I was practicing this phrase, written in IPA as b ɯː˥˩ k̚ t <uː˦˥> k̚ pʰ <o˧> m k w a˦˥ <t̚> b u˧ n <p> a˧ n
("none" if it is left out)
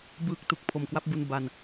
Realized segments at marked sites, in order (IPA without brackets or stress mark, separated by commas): u˦˥, o˩˦, p̚, b